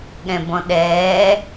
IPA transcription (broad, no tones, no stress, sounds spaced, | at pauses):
ɠ ɛ̃ b ɔ̃ ɗ ɛː